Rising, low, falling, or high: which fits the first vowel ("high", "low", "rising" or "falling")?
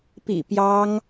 low